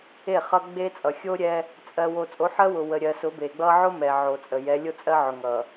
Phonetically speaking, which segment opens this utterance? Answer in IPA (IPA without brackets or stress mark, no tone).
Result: e